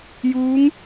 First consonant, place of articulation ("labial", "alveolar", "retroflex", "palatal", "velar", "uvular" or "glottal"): palatal